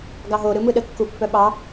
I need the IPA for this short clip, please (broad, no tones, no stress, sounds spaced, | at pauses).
ɡ ɑ ɦ o ɾ ɯ m ɯ ɗ ə kː u pː œ ɓ ɑ